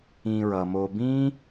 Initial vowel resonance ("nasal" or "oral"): nasal